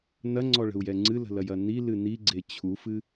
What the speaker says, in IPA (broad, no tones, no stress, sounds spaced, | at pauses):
n ɐ ŋ͡ǀ ɔ ɭ ə̤ u̯ j ɛ ŋ͡ǀ ɨ l ə̤ l ɐ j ɐ n i l ɨ n i ɡ͡ǀ e t͡ɕʰ u f ɨ